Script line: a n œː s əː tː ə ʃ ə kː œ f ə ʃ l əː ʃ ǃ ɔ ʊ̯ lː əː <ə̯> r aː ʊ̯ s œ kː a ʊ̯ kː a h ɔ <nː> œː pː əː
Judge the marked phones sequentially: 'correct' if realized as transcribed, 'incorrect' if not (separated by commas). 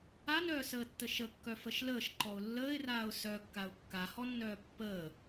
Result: incorrect, correct